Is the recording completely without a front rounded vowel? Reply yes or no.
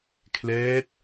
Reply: yes